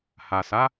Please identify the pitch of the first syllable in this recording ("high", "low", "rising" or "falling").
low